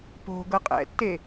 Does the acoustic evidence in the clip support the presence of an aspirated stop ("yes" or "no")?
no